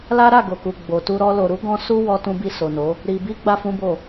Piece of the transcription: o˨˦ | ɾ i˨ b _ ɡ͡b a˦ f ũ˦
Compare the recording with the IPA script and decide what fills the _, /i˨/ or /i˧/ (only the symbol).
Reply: i˧